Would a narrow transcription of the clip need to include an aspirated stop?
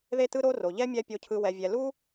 yes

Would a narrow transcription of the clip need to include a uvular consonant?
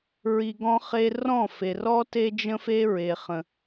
yes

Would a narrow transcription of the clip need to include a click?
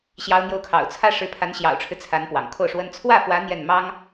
no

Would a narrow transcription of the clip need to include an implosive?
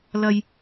no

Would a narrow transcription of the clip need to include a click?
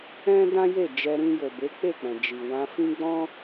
no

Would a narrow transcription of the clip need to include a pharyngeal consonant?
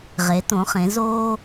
no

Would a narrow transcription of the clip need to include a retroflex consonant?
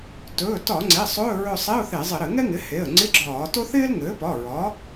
no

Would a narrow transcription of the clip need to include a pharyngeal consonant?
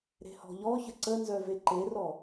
no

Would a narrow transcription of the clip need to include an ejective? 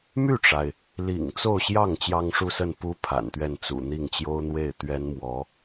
no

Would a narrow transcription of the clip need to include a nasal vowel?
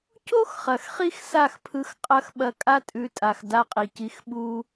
no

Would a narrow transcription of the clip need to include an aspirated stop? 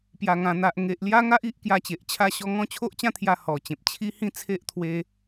yes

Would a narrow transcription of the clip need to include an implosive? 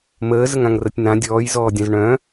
no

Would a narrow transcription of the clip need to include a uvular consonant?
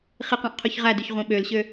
yes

